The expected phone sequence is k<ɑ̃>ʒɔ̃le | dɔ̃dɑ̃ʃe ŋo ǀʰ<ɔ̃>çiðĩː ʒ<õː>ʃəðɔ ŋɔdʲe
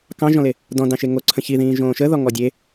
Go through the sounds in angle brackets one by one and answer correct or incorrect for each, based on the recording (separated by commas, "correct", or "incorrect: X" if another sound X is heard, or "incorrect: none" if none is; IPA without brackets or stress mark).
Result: correct, incorrect: ə̃, correct